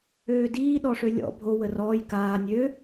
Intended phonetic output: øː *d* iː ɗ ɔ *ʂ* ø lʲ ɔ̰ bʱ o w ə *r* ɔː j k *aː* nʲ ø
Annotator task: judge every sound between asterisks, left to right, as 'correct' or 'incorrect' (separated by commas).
correct, correct, correct, correct